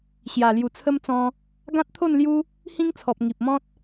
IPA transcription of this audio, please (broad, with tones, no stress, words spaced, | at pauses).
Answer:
ɕja˨˩lju˨˩t͡sʰə˦mt͡sɔ̃˧ | ɡã˦t̚t̪ʰo˥˧n lju˦ | hĩ˦ŋt͡sʰɔ˨p̚ ŋi˨p̚mɔ̃˦t̚